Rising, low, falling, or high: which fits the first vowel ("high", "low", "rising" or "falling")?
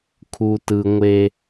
low